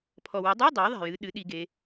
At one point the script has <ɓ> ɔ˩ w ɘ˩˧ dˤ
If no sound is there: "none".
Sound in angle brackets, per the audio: pʰ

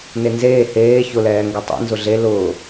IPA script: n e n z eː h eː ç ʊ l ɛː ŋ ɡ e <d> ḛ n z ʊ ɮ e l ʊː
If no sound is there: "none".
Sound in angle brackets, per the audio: tˤ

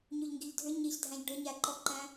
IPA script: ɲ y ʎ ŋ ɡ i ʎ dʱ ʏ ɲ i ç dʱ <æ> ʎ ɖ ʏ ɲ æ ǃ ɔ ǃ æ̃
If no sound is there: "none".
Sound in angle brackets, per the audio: æ̃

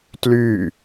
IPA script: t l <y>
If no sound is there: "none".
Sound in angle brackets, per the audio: y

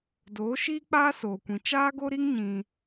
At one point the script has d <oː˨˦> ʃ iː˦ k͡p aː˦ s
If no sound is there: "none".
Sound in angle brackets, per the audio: oː˨˦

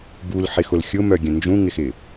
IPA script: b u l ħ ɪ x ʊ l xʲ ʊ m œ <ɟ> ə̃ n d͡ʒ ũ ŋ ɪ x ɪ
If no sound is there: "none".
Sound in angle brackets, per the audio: ɡʲ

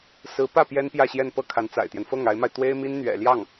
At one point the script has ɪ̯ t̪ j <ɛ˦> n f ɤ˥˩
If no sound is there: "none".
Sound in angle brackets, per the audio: ɛ˦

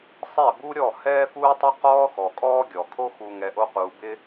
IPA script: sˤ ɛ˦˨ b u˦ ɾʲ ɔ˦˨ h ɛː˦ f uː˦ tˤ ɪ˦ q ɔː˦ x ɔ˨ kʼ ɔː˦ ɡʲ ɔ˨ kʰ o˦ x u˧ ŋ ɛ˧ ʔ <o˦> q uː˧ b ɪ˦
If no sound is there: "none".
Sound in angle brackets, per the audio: o˦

